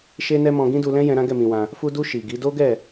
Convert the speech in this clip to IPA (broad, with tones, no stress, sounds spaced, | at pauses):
ʃ e˦ n ɛ˦ m ɔ̃˧ ɡ ĩ˦ d u˧ l ɛ̃˦ j ɛ̃˧ ɾ ã˦ ɡ ɛ˦˨ m ĩ˧ w ã˧ | f u˧ d u˧ ʃ i˨ ɡ i˨˦ d o˦ ɡ ɛ˦˨